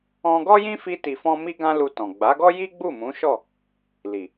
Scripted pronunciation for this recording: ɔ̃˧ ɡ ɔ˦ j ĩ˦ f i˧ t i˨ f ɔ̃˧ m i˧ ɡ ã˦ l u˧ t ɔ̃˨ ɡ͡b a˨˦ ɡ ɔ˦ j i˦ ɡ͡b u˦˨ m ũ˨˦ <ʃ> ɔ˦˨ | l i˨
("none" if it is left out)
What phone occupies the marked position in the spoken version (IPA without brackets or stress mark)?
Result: ʃ